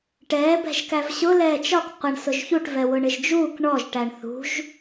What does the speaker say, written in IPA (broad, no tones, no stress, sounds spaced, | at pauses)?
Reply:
ʈ ɛː b ɛ̤ ʒ k æ v ɕ ʊ l ɛː t͡ʃ ɒ k qʷ ə ɳ s ʊ ʒ ç u ʈ v ɛ w ʊ ɳ ɪ ʒ d͡ʒ uː k ɳ ɔ ʒ ʈ æ ɳ θ ṳ ʒ